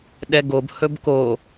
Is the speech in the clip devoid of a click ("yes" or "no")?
yes